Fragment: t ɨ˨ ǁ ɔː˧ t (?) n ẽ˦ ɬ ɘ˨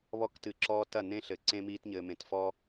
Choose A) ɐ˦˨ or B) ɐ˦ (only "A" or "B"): A